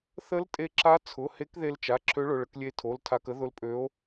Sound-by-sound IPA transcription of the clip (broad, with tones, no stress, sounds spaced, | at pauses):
θ ə˧˥ l tʼ e˧ ǁ a˧˥ t͡sʰ ʊ˩˧˩ h e˧˥ k ð e˧ l t͡ʃ a˩˧˩ ǁʰ ø˧˥ ɭ ʊ˩˧˩ ɭ ə˧ k lʲ e˧˥ tʰ o˩˧˩ l tʰ a˧ k ə˧˥ ð ʊ˧˥ l pʼ ø˧˥ o̯